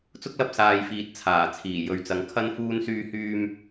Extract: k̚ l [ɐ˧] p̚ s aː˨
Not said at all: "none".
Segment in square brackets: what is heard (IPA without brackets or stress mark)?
ɐ˧